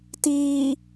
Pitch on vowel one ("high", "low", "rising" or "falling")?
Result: low